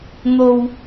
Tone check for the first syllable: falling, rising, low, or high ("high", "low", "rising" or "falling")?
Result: low